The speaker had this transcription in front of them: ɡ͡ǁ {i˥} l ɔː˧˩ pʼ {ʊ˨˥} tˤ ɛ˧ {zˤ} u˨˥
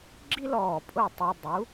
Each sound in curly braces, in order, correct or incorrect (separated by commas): correct, incorrect, incorrect